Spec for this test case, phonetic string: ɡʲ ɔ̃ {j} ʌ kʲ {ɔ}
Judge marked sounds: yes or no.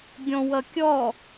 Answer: no, yes

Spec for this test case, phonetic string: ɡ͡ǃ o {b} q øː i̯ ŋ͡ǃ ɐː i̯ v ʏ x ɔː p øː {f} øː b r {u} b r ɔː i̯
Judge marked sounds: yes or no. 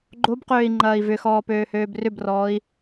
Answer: yes, no, no

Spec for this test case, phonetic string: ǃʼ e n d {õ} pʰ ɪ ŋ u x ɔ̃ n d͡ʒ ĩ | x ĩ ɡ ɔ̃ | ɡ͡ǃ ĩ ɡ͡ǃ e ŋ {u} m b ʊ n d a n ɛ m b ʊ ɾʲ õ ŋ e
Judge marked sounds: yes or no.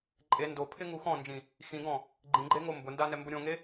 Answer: no, no

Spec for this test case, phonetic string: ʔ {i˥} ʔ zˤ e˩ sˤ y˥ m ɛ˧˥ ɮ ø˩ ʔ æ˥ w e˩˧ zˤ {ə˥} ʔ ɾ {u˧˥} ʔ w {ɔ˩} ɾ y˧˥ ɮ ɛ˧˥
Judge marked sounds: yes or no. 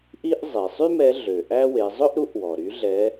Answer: yes, no, yes, yes

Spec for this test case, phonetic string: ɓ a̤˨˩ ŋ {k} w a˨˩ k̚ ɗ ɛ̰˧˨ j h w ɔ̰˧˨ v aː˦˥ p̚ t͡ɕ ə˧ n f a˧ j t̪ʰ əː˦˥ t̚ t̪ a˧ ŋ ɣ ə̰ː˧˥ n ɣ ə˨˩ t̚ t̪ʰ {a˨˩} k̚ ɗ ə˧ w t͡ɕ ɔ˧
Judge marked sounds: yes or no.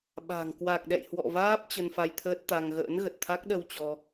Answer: yes, no

